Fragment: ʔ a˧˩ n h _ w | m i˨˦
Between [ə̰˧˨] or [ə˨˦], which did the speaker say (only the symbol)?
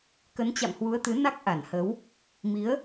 ə˨˦